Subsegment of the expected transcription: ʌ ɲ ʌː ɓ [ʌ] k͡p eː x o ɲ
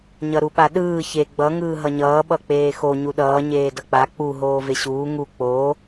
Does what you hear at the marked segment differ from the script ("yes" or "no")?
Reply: no